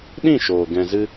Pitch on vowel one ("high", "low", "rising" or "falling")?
falling